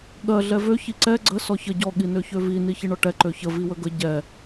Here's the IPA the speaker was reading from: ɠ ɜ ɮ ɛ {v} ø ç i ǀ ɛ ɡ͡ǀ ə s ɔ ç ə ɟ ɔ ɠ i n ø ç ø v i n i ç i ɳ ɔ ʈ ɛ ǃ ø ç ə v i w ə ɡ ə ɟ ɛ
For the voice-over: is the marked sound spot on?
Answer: yes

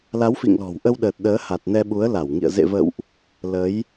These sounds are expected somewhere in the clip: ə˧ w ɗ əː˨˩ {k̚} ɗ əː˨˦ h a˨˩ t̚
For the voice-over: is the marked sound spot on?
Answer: no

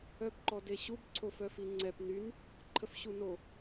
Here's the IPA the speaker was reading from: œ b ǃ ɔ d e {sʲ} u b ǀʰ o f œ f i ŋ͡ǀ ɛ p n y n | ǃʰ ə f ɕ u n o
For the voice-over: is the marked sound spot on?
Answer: no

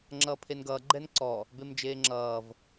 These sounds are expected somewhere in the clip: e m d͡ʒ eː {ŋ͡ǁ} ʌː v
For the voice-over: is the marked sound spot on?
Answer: yes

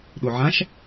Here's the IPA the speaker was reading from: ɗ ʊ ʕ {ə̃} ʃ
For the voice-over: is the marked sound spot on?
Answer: no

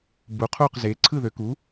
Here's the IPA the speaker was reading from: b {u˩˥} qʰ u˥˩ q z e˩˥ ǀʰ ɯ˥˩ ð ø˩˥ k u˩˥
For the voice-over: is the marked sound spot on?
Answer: yes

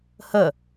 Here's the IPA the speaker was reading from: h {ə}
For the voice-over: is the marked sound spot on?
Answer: yes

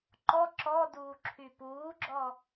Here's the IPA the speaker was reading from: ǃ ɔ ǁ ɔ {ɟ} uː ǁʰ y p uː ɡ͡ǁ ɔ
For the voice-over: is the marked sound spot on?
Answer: no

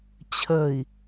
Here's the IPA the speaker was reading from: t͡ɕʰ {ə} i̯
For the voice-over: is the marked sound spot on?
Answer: yes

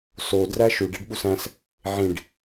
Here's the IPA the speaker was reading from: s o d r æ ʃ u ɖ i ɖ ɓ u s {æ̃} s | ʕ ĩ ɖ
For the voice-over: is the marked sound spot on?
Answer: yes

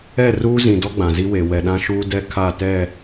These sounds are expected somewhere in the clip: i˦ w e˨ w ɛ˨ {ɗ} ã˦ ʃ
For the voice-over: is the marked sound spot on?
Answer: yes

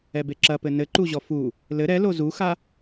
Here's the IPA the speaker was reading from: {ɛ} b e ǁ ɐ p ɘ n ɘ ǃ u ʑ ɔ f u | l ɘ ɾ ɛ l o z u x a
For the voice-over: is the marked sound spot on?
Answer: yes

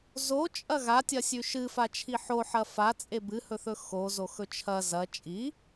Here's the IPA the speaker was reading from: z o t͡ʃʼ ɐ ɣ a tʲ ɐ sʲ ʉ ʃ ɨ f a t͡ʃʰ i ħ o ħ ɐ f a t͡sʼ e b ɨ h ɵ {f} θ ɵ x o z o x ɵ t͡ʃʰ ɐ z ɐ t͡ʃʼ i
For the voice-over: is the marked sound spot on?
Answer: no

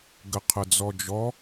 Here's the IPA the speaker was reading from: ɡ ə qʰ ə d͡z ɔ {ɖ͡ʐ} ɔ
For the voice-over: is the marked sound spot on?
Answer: no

